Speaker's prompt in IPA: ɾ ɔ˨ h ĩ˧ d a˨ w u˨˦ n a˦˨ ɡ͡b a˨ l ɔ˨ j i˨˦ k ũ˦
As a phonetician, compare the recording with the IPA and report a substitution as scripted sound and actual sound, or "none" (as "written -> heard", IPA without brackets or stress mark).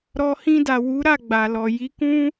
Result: n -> ɾ